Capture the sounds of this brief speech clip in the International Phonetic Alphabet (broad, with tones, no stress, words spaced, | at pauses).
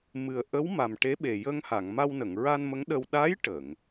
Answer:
mɨ˨˩ə̯ʔə˧˥w ma˨˩m ʈe˧˥ɓe˨˩jə˧ŋha˨˩˨ŋ ma˧wnə˨˩˨ŋɹa˧n mə˧˥ŋɗə˧w ɗa˧˥j ʈə˨˩˨ŋ